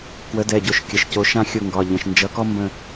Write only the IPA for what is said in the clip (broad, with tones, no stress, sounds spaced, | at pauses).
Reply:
k w ə˨˥ d ɛ˩˧˩ ɟ o˦˨ ʃ kʲ ə˩˧˩ ʃ c o˨˥ ʃ ã˥ xʲ o˦˨ ŋ ɡ ɒ˩˧˩ ʎ ə̃˩˧˩ ʃ n d͡ʒ ʌ˨˥ k ɔ˥ m b ə̃˦˨